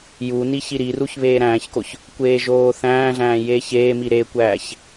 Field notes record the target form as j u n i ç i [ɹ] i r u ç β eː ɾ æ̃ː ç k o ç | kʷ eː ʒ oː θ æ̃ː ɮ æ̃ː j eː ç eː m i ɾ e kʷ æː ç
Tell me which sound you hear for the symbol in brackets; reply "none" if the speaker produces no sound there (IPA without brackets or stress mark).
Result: ɾ